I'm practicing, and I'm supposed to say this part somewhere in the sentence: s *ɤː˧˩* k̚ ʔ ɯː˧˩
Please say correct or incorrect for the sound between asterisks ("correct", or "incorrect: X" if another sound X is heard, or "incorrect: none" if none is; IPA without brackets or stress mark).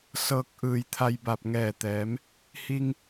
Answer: incorrect: ɤː˧